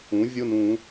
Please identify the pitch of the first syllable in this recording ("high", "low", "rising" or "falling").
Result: rising